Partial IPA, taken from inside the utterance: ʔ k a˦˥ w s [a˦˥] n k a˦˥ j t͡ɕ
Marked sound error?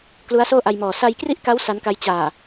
no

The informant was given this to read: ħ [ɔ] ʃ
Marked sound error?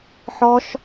no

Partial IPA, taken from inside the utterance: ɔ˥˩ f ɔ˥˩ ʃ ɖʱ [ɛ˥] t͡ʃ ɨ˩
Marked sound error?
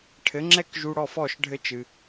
yes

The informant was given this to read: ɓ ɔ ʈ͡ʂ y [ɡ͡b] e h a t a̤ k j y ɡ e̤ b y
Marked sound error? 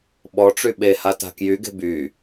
yes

